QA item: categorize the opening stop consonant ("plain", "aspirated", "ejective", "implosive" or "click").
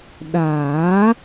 implosive